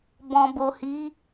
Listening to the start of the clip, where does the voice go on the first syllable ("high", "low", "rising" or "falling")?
low